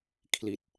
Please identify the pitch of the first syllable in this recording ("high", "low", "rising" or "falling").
low